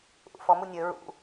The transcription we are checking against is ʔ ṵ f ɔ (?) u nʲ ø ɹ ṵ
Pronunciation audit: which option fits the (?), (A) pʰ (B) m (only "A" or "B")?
B